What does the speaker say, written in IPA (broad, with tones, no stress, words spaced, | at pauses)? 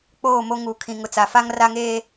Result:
k͡poː˦˨mo˦ ŋuː˨kʰĩ˨ŋʊ˨ t͡sa˨fa˦ŋ ra˦ŋeː˦